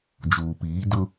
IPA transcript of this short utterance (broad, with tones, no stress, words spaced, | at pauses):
d͡ʒuː˨piː˨˦ dʊ˦